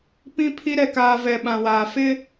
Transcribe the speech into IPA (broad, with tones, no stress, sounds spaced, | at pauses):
p ĩ˦ pʰ i˦ ɾ ɛ˨ k aː˨ v ɛ˨ ɓ ã˨ w aː˨ f ɪ˦